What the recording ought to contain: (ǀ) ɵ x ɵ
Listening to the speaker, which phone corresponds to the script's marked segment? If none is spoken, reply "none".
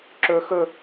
ǁ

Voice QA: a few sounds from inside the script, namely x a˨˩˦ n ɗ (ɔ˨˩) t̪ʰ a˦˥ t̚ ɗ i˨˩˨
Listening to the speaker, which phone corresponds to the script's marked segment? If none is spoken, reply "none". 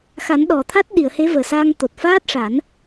ɔ˨˩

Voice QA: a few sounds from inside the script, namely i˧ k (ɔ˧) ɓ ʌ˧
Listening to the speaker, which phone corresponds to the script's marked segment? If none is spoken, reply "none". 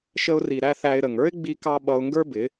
ɑ˧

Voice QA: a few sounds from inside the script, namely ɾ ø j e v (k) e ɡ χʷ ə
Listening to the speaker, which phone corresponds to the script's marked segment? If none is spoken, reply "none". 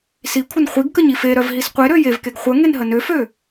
k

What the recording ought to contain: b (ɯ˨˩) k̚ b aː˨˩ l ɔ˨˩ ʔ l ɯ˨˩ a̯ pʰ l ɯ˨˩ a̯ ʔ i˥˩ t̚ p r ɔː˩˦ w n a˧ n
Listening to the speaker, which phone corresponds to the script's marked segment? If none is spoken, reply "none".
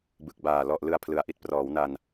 ɯ˨˩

